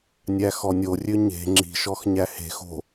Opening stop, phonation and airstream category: click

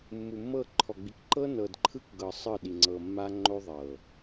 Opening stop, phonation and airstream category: click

